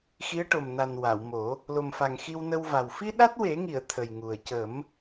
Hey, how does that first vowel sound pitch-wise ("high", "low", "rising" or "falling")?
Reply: rising